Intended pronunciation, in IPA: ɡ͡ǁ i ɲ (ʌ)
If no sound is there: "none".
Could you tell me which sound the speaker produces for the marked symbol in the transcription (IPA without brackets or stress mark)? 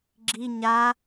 a